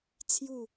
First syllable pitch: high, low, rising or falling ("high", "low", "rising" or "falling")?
falling